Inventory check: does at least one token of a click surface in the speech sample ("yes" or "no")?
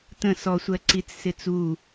yes